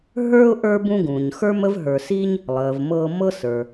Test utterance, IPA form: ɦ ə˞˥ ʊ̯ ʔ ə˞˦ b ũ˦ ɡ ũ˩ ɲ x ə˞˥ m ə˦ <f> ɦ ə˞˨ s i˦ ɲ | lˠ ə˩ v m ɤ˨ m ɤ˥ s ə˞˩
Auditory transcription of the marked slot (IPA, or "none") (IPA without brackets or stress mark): v